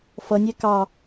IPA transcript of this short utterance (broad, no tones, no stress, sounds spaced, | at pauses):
f ʌ nʲ ɛ k ɑ